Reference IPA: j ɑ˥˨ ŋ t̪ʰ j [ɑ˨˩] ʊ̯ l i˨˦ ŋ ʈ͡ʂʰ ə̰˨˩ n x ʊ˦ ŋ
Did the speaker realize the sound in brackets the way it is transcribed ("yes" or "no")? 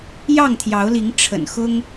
no